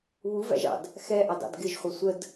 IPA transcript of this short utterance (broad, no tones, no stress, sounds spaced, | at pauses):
β u v æ̰ ʒ ɑ̰ d | x ɛ ʔ ɑ d ɑ̰ d ɡ ɪ ʒ χʷ ʌ sʷ ə d